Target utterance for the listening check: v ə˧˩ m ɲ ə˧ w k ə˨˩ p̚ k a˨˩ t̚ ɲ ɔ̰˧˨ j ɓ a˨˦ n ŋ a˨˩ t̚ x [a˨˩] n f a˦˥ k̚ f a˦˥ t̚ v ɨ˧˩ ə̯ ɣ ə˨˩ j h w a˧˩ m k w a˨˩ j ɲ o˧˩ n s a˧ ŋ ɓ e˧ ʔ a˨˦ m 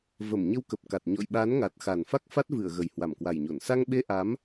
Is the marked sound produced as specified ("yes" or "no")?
yes